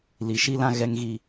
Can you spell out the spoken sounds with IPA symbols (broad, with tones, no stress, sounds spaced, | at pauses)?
l i˨ ʃ i˦ l ã˦ ɣ ɛ˦ ŋ ɣ i˦